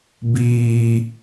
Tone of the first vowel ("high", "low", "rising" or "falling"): high